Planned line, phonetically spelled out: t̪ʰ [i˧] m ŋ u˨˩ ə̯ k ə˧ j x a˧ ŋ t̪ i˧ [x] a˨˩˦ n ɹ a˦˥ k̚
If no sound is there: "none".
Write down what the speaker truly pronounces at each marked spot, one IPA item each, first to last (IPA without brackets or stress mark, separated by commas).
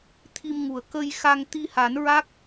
i˧, h